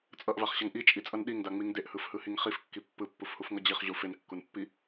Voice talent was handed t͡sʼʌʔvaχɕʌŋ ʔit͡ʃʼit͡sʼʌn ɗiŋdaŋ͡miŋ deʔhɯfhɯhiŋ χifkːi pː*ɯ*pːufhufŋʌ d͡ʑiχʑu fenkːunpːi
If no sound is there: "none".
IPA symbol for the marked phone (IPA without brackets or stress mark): ɯ